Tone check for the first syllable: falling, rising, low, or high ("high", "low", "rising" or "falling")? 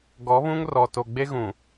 rising